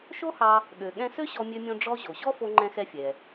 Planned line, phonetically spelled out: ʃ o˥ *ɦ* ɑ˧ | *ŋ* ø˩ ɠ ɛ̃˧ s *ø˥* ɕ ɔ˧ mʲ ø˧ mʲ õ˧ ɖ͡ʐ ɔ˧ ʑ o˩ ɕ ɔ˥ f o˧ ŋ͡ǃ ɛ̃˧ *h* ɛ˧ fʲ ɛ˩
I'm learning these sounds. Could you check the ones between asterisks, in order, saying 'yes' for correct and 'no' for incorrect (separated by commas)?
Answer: no, no, yes, no